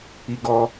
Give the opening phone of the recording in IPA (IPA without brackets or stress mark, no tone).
i